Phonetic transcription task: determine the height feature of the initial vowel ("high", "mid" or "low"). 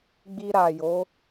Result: high